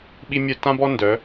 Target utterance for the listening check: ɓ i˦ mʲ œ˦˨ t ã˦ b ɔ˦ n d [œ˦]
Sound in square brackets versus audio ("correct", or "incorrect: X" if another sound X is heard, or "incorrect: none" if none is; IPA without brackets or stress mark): incorrect: œ˨˦